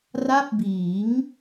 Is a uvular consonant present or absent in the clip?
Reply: absent